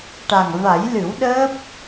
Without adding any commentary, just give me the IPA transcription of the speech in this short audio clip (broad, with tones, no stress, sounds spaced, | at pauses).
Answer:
ʈ a˨˩ ŋ v a˨˩˦ j l ɨ˨˩˦ w ɗ əː˦˥ p̚